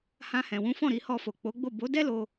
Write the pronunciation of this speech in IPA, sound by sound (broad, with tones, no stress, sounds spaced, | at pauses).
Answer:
h ã˧ h ɛ̃˨ w ũ˨˦ f ɔ̃˦˨ ɾ i˧ h ɔ˧ f o˨ k͡p o˨˦ ɡ͡b o˦˨ b o˨˦ d ɛ˦ l o˧